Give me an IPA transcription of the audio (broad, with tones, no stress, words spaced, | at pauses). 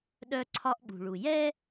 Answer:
ɗœ˦ǀʰɒ˦ʔɓṳ˨ɭu˨ jɛ˦